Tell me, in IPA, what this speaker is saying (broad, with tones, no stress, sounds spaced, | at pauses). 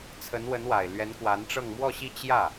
t͡sʰ ə˧˥ n w ə˧˥ n w a˨˩ ɪ̯ l ɥ ɛ˧˥ n k w a˧˥ n ʈ͡ʂ ɤ˥˧ ŋ m w ɔ˥˧ ɕ i˥˧ t͡ɕ j ä˥˩